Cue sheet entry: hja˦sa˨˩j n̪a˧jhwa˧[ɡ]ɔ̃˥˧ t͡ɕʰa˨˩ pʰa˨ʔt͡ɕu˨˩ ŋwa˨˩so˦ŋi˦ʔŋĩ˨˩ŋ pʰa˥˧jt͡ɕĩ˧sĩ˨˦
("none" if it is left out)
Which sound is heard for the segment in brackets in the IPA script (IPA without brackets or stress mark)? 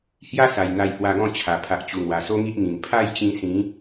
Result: ɡ